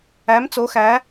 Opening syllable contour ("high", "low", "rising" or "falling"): rising